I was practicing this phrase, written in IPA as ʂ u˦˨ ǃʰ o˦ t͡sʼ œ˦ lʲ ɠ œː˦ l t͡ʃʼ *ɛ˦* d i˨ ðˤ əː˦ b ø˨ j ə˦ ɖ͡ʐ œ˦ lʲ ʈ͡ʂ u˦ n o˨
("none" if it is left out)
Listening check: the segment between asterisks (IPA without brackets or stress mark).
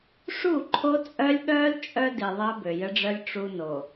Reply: œ˦